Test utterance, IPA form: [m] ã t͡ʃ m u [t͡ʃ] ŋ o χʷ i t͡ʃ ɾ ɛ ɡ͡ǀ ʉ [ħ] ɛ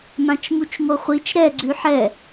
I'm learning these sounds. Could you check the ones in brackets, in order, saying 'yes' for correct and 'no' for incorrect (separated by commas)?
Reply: yes, yes, yes